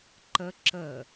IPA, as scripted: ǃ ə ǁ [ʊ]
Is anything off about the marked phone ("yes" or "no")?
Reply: yes